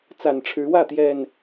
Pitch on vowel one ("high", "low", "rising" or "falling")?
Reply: low